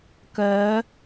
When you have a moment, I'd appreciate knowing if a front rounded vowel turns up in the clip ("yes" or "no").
yes